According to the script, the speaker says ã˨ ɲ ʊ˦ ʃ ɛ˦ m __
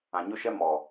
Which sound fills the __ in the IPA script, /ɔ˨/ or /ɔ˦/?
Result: ɔ˨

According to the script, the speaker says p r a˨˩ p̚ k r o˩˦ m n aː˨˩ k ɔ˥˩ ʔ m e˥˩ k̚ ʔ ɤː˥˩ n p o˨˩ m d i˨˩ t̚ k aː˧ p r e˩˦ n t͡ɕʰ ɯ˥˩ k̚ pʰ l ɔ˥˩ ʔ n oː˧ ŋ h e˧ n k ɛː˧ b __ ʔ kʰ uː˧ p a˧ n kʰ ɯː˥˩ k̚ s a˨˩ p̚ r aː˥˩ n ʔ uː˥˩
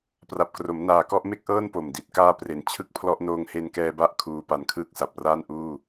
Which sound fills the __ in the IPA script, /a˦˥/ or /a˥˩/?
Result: a˦˥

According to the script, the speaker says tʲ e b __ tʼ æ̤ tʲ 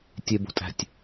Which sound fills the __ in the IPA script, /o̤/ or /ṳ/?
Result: o̤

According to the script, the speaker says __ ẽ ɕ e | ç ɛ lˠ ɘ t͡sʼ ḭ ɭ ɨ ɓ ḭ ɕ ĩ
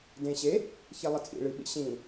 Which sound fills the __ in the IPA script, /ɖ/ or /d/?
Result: d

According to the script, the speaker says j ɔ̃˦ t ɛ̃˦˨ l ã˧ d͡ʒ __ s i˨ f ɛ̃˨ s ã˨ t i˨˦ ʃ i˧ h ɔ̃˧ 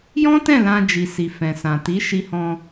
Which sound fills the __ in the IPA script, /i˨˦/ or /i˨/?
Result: i˨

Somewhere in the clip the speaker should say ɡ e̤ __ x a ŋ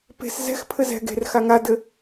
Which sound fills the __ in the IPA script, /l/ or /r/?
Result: r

